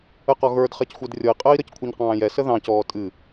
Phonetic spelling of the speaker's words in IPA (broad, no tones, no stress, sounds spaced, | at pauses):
ə q ɔ ɣ ə˞ d χ ɛ c xʷ ɛ d rʲ ɔ i̯ qʼ əː i̯ ɾ ə c kʷʰ i ɲ q ɑ̃ː j ɛ s ə ð ɑ̃ c ɔː tʼ ɨ